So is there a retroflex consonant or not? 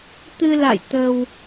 no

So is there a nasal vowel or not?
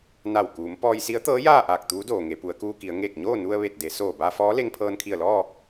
no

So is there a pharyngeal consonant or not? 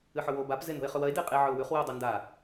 yes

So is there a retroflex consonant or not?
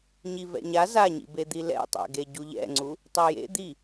no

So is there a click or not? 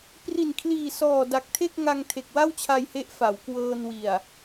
no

